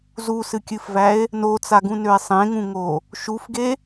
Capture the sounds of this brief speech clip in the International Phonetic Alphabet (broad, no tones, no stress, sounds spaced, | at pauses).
z u s ɨ kʲ ɨ f v æ e̯ | n o t͡s a ɡ ũ n ø e̯ sˤ ẽ ŋ ũ ŋ o | ʃ u f ɡ e